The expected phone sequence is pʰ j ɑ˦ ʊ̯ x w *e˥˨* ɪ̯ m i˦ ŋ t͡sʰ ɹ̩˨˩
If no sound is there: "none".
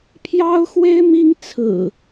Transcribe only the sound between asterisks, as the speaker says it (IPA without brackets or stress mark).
e˦